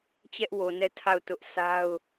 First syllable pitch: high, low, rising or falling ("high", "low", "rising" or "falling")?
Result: high